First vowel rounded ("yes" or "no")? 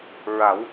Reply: no